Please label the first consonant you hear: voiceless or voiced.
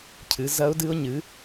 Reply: voiceless